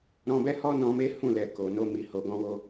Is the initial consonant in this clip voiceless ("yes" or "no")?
no